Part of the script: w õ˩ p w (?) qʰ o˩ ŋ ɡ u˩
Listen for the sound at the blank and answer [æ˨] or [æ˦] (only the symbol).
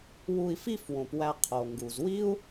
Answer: æ˨